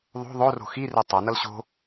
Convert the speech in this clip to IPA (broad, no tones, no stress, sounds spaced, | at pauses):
ðˤ o̤ ðˤ o r o̤ x i r ɛ tˤ a n ʌ l ɕ o̤